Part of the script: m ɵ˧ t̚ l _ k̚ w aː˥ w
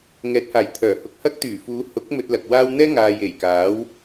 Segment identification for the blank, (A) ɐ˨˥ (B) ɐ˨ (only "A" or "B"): B